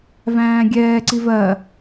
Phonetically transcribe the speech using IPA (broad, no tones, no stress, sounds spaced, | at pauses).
v æ̃ː ɡʲ ɛː ǀ i v ɜ